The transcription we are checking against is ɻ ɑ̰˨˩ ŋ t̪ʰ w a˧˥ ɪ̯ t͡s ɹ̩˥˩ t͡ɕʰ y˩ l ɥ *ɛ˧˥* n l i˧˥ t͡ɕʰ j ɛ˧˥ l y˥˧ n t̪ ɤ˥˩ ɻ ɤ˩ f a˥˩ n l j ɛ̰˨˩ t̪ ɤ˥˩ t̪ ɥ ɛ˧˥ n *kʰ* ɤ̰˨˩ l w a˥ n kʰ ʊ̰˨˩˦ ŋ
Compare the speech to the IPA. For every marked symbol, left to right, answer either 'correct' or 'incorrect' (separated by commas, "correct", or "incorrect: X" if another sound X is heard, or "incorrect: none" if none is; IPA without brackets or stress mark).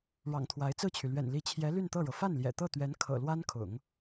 incorrect: ɛ̰˨˩, correct